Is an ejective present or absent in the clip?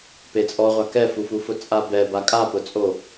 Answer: present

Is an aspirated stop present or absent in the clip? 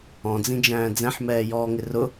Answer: absent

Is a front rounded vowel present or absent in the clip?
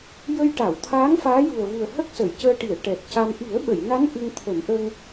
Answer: absent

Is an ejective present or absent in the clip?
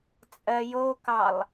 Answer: present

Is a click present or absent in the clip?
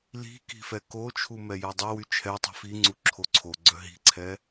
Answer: present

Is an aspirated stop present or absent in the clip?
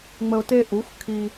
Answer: present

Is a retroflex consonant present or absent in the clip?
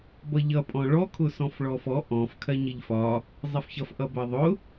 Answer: present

